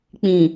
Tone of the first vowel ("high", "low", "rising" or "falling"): low